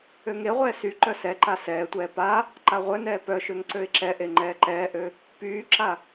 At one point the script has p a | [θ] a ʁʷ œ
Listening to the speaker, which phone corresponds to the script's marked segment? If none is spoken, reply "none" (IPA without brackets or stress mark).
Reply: ǃ